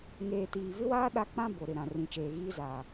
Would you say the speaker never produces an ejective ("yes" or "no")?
yes